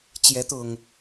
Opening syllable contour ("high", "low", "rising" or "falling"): rising